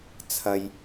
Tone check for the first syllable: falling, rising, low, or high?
low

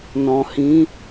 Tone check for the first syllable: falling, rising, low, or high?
low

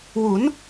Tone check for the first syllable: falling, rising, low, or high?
rising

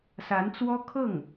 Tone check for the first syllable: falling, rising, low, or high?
rising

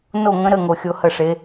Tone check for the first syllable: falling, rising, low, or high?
falling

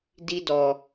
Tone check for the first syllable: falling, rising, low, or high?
high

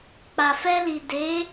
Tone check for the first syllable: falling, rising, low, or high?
low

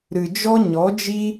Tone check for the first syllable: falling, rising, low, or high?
low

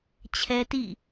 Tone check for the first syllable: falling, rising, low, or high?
high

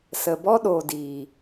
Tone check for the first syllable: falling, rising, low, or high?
low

